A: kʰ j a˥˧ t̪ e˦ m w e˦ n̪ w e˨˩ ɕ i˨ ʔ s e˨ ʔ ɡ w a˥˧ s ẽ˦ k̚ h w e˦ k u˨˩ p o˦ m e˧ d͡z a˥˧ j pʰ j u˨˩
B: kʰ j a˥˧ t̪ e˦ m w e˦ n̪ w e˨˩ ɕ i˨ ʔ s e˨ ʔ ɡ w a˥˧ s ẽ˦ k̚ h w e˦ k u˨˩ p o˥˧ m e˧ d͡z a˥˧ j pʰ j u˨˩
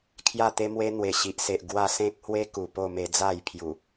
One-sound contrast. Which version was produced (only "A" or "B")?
B